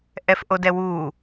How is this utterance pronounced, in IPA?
ʔ ɛ f ʔ o d ɛ w u

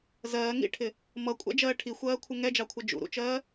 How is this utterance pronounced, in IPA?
z ɜː ŋ ḭ ʈʰ ɪ | m ʌ kʷʼ æ̰ d͡ʒ ɜː ʈʰ i xʷ ɜː kʷʰ ɪ ŋ ɛ d͡ʒ ɑ kʷʰ ʌ d͡ʒ ṵ ɾ ṵ t͡ʃ ɜː

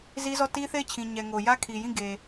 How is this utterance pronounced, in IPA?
z i˦ z ɔ˦˨ t i˦ θ e˦˨ ɪ̯ t͡ɕʰ ĩ˨ ɲ ɛ˨ ŋ o˨ j ä˦ kʰ i˨ j ĩ˦˨ ɡ e˨

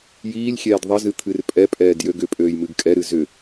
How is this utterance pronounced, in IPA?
j iː lʲ xʲ ɛː d ðˤ ə z ɨ t̪ʰ ɨ r pʼ ɛ pʼ ɛː d j ø ɡ ʏ pʼ øː j m ɨ ɡ kʼ ɛ ɾ ɨ z ʏ

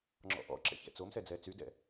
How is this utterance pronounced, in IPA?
ŋ͡ǁ ɔ̰ ʔ ɔ̰ ǁ ɛ̰ ç ɛ̰ t͡s o m s ɛ d͡z ɛː t͡s y d ɛ̰

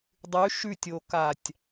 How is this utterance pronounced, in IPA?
dˤ ʉ ʃ ʉ tʲ o k a tʲ

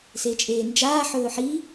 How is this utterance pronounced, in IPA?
s e t͡ʃʼ eː n d͡ʒ aː ħ ɵː ħ i

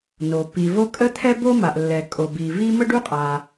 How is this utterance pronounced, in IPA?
n o˩ p i˩ v o˥ kʼ ə˥ t̪ʰ ɛ˥ b o˥ m a˩ ʔ lː ɛ˩ kʼ o˩ b i˩ v i˥ m ə˥ ɖ u˥ qʼ a˩

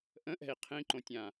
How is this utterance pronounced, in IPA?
ʔ ə̃ ʔ ɛ̤ i̯ qʰ ĩ ǃ õ tʲ ã

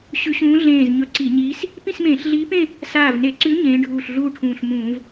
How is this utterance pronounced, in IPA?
ɕ ʉ˧˥ ɕ ũː˧˥ ɮ ẽː˧˩ z ɲ ɵ˧˥ ǀ i˧˩˧ ɲ iː˧˥ s | p ĩ˥˧ s m ẽː˧˩˧ ɬ ɮ iː˧˥ p ẽ˥˧ | s aː˧˩ v n e˧˩˧ ǀ ʉ˧˥ ɲ ẽː˧˥ ɖʱ uː˧˩ ɬ ɮ uː˥˧ ʈʰ ũː˧˩ ɬ m ũː˧˩˧ v

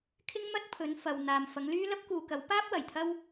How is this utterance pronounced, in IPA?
kʰ ɪ˥ ŋ m ɐ˥ t̚ pʰ ɵ˨˧ n f ɐ˨ w n̪ aː˨ m f ɐ˨˧ ŋ l yː˥ l ɐ˥ p̚ k uː˨ k ɐ˨˧ w p aː˥ p̚ w ɐ˨˩ j t̪ʰ ɐ˥ w

